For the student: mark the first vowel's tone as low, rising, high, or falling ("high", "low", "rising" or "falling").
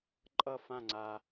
falling